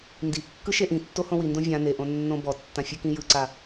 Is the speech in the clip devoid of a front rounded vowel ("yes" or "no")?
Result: yes